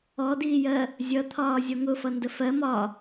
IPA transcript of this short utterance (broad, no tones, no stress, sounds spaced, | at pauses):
ɔ d iː j ɜ | zʲ ʌ t̪ʰ ɒː zʲ ɔ ŋ ʊ f ʌ n d ə f ɜ m ɒ